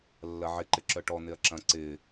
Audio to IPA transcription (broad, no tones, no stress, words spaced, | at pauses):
lːɐʕɪǃɪ ǁœʈɔn̪ɪɐ̯ ǁɐ̃ ǀɪ